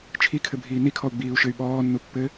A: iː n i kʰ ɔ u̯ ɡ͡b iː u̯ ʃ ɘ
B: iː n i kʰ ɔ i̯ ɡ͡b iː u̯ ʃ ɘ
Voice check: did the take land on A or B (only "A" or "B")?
A